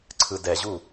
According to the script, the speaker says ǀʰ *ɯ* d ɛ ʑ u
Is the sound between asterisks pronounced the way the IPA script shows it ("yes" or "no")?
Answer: yes